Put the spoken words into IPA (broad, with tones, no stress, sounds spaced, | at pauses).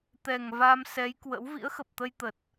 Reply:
t̪ ɛ˨˩ ŋ v a˧ m s ɛ˨˦ j k w ə̰˧˥ w v ḭ˧˥ ə̯ x ə˨˩ p̚ t̪ ə˧ j t̪ ə˨˩ t̚